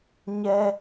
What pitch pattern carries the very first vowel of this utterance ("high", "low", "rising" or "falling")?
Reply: high